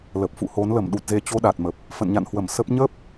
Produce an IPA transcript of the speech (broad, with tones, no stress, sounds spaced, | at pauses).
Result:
l ə˨˩ p̚ f ṵ˧˨ h o˨˦ n l ə˧˩ m ɗ u˨˩ t̚ z e˨˩ t͡ɕ o˧ ɗ a˨˩ t̚ m ə˨˩ p̚ | f ə̰˧˨ n ɲ a̰˧˨ n h w ə˧˩ m s ə˦˥ p̚ ɲ ə˦˥ p̚